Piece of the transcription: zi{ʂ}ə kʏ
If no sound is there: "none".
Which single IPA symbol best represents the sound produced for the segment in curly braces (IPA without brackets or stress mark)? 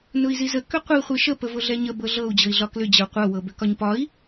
z